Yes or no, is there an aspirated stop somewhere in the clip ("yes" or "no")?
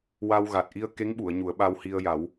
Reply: no